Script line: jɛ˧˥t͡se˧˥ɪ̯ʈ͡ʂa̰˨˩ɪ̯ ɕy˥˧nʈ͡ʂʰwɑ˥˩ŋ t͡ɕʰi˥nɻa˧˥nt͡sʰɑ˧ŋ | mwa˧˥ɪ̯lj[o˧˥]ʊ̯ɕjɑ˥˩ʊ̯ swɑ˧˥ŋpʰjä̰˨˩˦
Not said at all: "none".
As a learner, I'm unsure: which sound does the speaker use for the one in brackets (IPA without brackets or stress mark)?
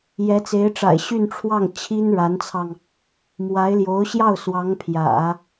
o˧˥